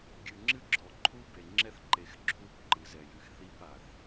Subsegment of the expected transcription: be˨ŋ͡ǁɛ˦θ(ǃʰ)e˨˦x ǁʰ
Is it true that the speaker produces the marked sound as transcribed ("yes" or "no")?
no